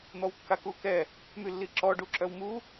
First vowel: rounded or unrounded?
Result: rounded